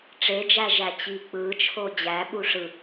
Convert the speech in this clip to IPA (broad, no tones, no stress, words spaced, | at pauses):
ʈ͡ʂed͡ʒæ ʒæt͡ɕik͡pɯt͡ʃʰo d͡ʑæɓu ʂɯ